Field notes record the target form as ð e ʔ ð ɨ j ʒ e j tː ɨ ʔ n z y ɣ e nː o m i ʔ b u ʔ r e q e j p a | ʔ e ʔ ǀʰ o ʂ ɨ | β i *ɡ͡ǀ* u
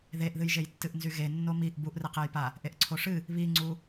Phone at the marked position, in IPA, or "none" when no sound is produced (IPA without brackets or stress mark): ŋ͡ǀ